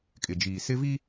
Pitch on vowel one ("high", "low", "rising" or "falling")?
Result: low